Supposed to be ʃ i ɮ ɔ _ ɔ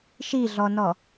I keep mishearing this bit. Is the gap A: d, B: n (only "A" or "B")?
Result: B